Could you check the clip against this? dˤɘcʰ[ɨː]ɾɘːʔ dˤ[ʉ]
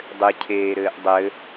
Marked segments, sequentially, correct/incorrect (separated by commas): incorrect, incorrect